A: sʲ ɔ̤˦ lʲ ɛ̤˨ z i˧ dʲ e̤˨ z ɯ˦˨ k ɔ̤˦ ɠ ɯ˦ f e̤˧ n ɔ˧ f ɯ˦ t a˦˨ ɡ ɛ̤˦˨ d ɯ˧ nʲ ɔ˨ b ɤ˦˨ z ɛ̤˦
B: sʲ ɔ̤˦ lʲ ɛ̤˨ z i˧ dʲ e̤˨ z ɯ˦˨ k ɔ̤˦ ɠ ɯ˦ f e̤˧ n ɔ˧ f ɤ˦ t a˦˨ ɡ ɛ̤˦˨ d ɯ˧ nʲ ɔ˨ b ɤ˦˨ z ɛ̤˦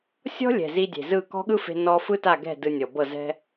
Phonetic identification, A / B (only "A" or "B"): A